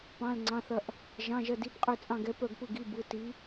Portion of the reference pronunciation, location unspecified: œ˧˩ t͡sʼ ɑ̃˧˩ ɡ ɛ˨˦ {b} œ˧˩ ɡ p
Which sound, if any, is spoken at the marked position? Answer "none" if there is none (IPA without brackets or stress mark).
p